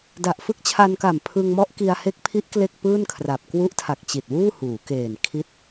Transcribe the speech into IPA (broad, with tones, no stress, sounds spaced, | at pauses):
d a˨˩ ʔ f ɯ˦˥ k̚ t͡ɕʰ a˧ n k a˨˩ m pʰ ɯ˧ ŋ m ɔ˦˥ ʔ k i˧ a̯ h e˦˥ k̚ pʰ i˦˥ ʔ k l e˥˩ k̚ p ɯː˥˩ n kʰ r a˨˩ p̚ k w u˦˥ ʔ tʰ a˨˩ k̚ t͡ɕ i˨˩ t̚ w uː˥˩ h uː˩˦ k eː˨˩ n kʰ i˦˥ t̚